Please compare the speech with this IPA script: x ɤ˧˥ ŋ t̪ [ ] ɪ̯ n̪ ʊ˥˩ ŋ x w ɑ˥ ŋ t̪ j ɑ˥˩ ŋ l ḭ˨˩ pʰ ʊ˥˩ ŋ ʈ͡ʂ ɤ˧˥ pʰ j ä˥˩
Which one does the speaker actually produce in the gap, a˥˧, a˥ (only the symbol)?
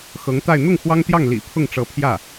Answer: a˥˧